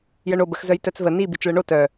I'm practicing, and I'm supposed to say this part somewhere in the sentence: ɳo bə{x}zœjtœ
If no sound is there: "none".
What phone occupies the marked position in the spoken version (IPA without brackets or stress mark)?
x